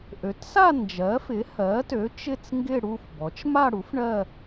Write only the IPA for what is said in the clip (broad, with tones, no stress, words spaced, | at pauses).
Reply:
ʔø˩˥tsa˥˧ nd͡ʒɜ˩˥fɪ˩˥hɜ˩˥tø˩˥ t͡ʃɪ˥˧t͡sŋɡɪ˥˧ɽu˥˧fbɔ˩˥t͡ʃ ma˥˧ɽu˩˥f ɳɜ˥˧